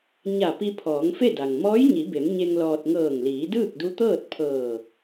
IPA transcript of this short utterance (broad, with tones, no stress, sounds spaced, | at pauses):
ɲ a˧˩ p i˧ pʰ ɔː˩˧ ŋ f e˥˨ d a˩ ŋ m ɔː˧˥ j ɲ i˩˧ b e˩˧ m ɲ e˧ ŋ l ɔː˧ t̚ ŋ ɤː˧˩ ŋ l iː˩˧ d ɯː˥˨ k̚ d u˧˥ t̪ ɤː˥˨ t̚ pʰ ɤː˧˩